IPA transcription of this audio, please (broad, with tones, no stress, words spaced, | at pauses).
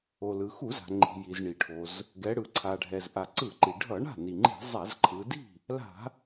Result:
o˩lɯ˩ xu˧˩˧za̤˩ŋ͡ǃi̤˩ji˩z ɳi˩ʈʰo˩z | ɡɛ˩˧ɽɯ˩ ǀʰa˩ɖʱɛ˩z ʔa˩ǀɯ˧˩˧ǃi˩ ɖʱʌ˧˩˧ɳa̤˥˩ ni˩ŋ͡ǃi̤˧˩˧ zˤa˧˩˧zǃʰɯ˩˧di̤˥˩ | la̤˧˩˧